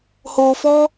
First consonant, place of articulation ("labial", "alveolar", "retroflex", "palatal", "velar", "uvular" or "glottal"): glottal